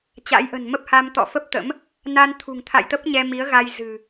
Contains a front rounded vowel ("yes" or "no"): no